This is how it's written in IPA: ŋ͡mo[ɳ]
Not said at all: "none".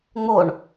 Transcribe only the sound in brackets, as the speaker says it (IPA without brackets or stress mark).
ɳ